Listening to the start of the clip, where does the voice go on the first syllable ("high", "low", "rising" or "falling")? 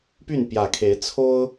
falling